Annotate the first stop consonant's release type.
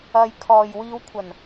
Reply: aspirated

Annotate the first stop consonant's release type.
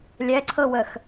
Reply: click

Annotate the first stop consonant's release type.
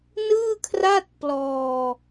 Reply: aspirated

